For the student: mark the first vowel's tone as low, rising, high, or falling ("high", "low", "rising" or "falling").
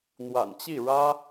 low